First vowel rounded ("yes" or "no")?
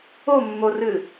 yes